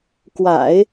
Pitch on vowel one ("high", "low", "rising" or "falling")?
low